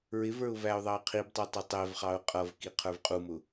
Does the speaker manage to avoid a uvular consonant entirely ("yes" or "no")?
no